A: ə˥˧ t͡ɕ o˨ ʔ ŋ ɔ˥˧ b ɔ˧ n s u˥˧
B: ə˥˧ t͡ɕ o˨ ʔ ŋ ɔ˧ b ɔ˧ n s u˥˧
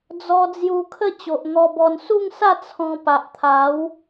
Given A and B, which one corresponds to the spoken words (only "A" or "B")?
B